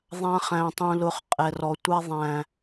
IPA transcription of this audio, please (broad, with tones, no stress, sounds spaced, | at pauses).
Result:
ðˤ ã˦ χ æ̃˧ tˤ ũ˧ l ʊ˧ χ qʼ ɛ˨ r ɔ˨ tʷ a˧ ðˤ æ̃ː˨